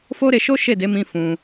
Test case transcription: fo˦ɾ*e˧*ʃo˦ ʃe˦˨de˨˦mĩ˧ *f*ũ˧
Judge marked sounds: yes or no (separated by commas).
yes, yes